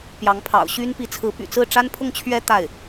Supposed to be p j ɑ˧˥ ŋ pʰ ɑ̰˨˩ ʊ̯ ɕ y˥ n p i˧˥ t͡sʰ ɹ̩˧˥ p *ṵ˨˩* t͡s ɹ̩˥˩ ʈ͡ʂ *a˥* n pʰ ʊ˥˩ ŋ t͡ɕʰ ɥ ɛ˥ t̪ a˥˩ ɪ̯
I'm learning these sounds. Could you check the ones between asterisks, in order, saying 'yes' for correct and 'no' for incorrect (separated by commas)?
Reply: no, yes